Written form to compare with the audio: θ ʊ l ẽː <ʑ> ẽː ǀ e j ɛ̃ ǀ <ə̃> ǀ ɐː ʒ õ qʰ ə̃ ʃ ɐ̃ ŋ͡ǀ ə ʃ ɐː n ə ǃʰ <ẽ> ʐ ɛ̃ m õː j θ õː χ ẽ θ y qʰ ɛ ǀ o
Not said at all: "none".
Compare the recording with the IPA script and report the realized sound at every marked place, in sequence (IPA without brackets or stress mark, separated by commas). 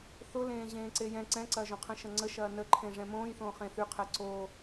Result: ʑ, ɛ̃, ẽ